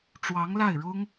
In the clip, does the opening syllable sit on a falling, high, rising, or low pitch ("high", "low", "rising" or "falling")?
rising